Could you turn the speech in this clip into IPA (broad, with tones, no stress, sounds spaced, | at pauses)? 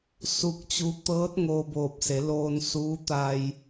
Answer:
s u˧ k̚ t͡ɕ u˧˥ t̪ ɤː˧˥ t̚ ŋ oː˧ b oː˧˩ p̚ s e˩˧ l oː˧ n s uː˧˥ t̪ a˧ j